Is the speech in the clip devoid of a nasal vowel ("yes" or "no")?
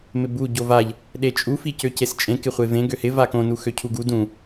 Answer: no